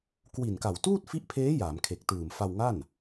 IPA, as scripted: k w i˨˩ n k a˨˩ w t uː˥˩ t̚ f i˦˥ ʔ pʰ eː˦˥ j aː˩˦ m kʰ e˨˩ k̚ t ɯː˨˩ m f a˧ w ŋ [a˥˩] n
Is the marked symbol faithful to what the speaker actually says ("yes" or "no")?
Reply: yes